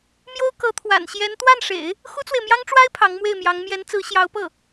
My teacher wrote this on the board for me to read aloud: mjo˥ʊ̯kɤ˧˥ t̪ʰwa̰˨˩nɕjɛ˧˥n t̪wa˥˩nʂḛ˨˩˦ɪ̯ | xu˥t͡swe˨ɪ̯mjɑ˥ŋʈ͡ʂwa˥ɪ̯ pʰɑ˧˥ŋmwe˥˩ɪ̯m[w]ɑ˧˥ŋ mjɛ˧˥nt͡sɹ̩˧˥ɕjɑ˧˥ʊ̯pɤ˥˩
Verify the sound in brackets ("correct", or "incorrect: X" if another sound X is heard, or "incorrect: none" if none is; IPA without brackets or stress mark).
incorrect: j